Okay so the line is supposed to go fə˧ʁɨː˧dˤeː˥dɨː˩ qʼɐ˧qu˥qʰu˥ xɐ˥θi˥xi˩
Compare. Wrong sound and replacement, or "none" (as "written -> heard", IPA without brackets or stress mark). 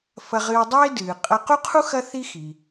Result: ə˧ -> ɐ˧